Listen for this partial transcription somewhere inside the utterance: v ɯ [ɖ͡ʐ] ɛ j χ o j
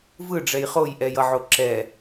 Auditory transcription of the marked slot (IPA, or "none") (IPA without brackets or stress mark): ɖ͡ʐ